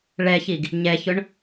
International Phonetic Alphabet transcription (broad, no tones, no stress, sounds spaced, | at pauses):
ɭ ɛ ç i ɡ | ɲ ɛ ç ʊ ɳ